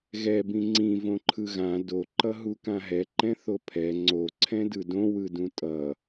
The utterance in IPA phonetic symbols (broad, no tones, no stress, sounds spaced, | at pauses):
ɣ ɛ b ĩ ŋ͡ǀ ĩ v õ ǃʰ ɯ ɣ ã d o ǃ ʌ ɦ u k ã ɦ ɛ ǃ ɛ̃ θ o pʰ ɛ ŋ͡ǀ o ǀʰ ɛ̃ d ɯ d õ w ɯ d ũ tʼ ʌ